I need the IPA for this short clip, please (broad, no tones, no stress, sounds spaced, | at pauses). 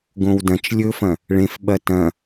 ɡ õ w d ɐ̃ t͡ʃ lʲ ɵ f ɐ̃ | ɭ ẽ f ɓ ɐ t ɐ̃